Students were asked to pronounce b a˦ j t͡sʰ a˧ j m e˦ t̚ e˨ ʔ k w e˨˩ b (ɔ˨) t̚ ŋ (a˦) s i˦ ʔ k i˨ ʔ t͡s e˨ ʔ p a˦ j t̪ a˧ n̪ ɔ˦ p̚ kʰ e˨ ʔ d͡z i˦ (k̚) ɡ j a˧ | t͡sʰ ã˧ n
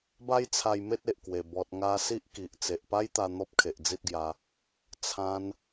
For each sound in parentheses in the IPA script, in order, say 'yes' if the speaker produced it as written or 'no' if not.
yes, no, no

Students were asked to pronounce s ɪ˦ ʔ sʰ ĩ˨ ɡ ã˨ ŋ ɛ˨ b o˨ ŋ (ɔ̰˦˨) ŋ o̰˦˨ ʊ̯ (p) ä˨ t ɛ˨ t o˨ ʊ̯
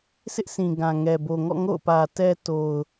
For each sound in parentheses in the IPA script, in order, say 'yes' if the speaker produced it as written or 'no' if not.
yes, yes

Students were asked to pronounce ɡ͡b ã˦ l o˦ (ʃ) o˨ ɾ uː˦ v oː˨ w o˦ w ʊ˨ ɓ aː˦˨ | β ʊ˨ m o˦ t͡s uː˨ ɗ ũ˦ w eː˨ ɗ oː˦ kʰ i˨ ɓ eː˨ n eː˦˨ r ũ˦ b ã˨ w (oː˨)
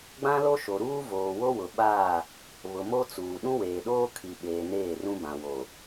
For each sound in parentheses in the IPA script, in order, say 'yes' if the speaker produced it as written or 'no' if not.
yes, no

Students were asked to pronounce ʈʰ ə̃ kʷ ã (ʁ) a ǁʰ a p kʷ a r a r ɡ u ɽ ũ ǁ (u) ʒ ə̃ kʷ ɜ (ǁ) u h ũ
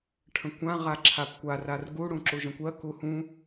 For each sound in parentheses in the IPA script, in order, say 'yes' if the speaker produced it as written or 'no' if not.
yes, yes, no

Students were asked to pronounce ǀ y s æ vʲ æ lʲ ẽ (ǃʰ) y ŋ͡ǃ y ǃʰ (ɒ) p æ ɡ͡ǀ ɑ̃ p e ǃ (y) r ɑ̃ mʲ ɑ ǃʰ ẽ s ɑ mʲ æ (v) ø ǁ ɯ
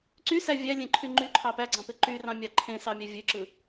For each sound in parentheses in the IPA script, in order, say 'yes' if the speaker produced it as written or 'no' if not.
yes, no, yes, no

